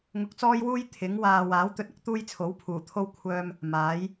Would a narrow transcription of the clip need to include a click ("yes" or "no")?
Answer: no